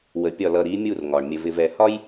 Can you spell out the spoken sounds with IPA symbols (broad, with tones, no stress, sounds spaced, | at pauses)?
w ə˨ pʲ ɒ˦˨ l ʌ˨ ɾ i˨˦ mʲ u˦˨ r ŋ ɒ˨ ɳ mʲ ə˨ v ɪ˨ v ɛ˨ h ɒ˦ j